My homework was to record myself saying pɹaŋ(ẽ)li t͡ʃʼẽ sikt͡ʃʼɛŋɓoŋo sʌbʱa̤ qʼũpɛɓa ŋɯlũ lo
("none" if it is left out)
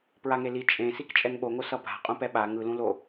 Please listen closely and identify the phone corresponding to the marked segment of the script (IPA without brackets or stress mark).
e